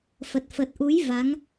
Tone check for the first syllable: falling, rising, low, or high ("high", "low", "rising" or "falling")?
low